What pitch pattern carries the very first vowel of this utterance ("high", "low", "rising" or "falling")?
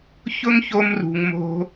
high